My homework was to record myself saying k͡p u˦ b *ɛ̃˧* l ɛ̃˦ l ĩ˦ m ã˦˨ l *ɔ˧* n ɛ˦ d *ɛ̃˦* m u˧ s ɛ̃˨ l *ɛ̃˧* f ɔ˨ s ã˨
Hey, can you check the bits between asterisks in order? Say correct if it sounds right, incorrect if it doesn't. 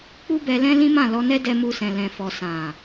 incorrect: ɛ˧, correct, incorrect: ɛ˦, incorrect: ɛ̃˨

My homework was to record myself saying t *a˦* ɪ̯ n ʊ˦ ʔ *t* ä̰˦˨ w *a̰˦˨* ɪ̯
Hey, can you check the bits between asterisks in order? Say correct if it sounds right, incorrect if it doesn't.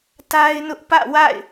correct, incorrect: p, correct

